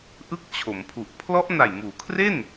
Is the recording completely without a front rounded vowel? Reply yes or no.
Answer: yes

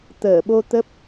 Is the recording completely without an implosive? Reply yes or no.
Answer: no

